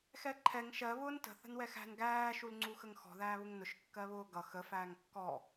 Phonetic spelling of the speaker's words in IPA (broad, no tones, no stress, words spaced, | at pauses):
xɛǃʰɛŋ ʃɜ βʊːntə̤ θə̤nwɛxæ̤n ɡæː ʃulŋ͡ǀuxəŋxɔ̤ ðæːβʊŋnʊʃ kːɜβʊːɡʌ xə fæːŋkːɔ